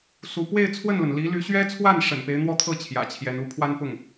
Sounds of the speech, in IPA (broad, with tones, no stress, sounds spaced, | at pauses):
s u˧˥ p w e˥˧ ɪ̯ t͡sʰ w ə˥˩ n l ə˩ n l i˧˥ l y˧˥ ɕ ɥ ɛ˥ t͡sʰ w a˥˩ n ʂ ə̰˨˩ n p e˧˥ ɪ̯ n̪ w ɔ˥˧ t̪ʰ ɤ˥˩ t͡ɕʰ j ä̰˨˩ t͡ɕʰ j ɛ˧˥ n u˧˥ pʰ w a˥ n p ʊ˥˩ ŋ